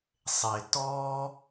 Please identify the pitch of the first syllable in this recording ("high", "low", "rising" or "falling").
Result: low